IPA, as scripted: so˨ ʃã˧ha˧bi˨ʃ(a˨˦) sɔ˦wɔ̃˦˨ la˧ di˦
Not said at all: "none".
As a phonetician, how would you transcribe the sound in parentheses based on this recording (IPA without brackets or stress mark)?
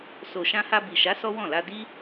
a˨˦